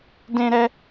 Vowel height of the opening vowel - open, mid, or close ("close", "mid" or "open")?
mid